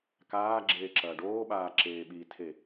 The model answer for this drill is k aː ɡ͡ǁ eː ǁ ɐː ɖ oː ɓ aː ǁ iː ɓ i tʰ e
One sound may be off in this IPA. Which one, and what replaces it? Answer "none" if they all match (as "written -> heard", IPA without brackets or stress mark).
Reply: iː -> eː